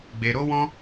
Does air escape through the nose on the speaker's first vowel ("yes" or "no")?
no